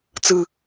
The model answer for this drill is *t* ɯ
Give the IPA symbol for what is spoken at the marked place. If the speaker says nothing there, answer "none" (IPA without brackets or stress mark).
t͡s